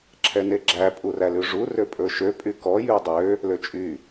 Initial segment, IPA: ǁʰ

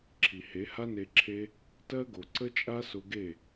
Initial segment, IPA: ǁʰ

